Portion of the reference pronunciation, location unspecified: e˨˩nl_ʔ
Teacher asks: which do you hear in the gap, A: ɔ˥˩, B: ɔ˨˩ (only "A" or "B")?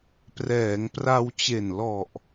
B